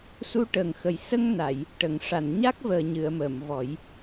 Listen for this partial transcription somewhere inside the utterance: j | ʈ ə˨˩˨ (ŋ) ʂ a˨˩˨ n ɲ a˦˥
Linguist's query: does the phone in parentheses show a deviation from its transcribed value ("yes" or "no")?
no